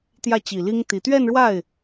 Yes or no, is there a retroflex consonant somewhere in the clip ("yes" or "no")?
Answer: yes